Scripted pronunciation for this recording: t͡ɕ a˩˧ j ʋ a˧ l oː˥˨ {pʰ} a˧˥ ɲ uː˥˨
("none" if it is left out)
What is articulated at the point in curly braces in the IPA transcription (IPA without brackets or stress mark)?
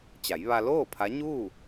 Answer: pʰ